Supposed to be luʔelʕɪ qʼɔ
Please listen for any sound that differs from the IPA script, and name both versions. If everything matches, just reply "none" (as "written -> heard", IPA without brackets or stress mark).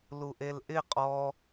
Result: ʕ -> ʔ